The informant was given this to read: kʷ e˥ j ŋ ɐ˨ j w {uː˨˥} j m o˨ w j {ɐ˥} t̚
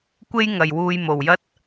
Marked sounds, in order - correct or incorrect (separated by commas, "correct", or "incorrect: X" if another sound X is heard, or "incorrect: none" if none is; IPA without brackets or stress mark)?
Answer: incorrect: uː˧, correct